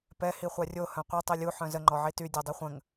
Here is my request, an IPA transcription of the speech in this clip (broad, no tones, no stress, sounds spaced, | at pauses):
p ɛ h i χʷ a rʲ o h œ̃ qʷ i tˤ i lʲ u ħ œ̃ z ə ŋ͡ǃ ɔ ʕ i t y dʲ ɔ dˤ i χʷ ə̃ ŋ